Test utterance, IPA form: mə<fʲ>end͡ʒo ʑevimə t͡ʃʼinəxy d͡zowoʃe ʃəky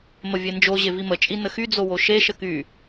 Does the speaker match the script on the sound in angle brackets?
no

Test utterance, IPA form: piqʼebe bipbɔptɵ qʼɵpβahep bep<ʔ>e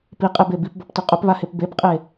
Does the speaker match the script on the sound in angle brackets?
no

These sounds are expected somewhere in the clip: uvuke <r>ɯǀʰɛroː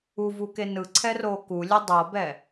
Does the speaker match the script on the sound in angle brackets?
no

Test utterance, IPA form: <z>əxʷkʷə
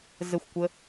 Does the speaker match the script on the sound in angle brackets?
yes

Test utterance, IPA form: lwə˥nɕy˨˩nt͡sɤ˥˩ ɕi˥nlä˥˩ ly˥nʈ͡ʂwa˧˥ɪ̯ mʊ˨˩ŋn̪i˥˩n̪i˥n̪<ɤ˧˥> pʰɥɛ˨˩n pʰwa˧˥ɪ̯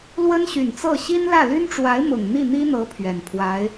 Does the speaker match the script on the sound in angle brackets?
yes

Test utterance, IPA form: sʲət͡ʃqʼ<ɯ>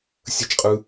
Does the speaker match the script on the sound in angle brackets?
yes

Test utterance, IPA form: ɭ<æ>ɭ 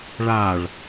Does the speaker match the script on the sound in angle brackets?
no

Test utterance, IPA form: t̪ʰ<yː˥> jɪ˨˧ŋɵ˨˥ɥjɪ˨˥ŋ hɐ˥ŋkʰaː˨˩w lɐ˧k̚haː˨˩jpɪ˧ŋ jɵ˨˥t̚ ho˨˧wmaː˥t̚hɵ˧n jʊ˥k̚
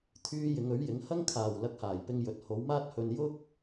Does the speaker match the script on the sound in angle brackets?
no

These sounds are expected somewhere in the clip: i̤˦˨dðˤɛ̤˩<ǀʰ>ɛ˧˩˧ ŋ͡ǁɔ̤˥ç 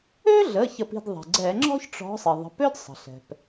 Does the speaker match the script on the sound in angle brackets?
no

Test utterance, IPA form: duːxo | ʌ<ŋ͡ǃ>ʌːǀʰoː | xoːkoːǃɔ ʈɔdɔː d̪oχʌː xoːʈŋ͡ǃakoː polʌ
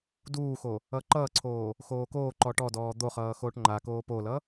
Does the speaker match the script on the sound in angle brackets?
no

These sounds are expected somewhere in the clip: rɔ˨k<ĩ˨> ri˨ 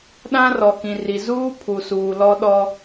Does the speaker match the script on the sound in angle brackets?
yes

